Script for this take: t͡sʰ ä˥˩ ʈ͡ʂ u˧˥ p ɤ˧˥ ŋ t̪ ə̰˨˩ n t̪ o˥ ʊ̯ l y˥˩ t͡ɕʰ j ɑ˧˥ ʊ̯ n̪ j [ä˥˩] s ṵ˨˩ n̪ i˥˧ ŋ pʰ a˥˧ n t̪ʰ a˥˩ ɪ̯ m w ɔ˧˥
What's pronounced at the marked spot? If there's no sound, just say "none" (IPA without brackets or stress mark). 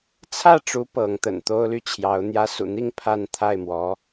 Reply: ä˥